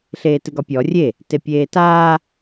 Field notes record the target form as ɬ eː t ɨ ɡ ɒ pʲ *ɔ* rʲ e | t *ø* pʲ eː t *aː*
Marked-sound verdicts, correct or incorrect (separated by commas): correct, incorrect, correct